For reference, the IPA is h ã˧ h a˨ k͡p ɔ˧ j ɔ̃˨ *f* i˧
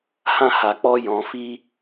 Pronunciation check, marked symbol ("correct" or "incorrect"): correct